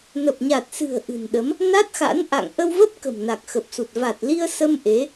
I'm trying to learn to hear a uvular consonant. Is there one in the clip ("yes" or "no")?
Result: no